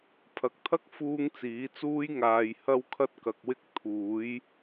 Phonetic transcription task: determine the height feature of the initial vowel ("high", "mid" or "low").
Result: low